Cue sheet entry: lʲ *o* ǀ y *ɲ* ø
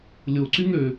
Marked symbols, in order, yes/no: yes, no

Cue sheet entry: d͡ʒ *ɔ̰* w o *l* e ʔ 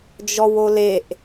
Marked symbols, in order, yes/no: no, yes

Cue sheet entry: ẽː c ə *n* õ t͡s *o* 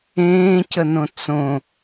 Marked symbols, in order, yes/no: yes, no

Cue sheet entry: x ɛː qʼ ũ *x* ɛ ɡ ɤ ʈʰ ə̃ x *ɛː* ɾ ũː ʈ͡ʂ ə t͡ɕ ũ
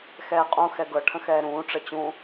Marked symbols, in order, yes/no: yes, yes

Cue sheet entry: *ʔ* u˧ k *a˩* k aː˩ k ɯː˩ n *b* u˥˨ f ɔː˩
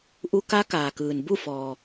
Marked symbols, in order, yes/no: yes, no, yes

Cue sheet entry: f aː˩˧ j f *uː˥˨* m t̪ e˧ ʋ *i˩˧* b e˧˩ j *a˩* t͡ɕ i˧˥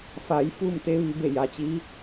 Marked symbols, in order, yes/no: yes, yes, yes

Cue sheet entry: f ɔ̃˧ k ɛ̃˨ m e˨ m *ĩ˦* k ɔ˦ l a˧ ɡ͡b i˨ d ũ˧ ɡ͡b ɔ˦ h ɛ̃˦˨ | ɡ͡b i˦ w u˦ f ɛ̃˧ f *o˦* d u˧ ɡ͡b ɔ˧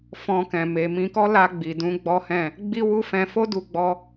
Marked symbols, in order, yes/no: no, yes

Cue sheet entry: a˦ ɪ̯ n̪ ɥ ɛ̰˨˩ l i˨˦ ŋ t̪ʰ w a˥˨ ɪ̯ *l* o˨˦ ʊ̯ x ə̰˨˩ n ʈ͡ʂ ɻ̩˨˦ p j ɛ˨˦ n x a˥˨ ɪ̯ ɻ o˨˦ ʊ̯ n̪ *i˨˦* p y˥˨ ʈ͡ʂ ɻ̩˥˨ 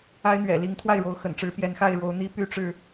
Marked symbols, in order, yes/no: no, no

